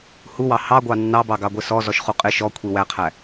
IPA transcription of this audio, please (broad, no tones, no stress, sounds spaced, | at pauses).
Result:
h u w ɑ h ɑ ɡʷ ɑ nː ɑ b ɑ ɡ ɑ ɡʷ ɪ s ɔ z ɔ ʃ χ u qʼ ɪ ʃ ɔ kʷʰ i w æ qʰ æ